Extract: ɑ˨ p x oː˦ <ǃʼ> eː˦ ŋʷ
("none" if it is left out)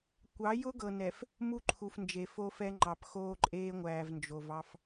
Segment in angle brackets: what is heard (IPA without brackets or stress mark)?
ǃʼ